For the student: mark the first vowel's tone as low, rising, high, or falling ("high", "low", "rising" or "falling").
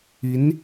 rising